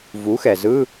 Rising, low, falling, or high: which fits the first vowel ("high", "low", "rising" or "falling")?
rising